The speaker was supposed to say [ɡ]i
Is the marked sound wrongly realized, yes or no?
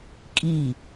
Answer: yes